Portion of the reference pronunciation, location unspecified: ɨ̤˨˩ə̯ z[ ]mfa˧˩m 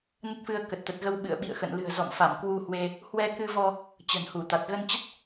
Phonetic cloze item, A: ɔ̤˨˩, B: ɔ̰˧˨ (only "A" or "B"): B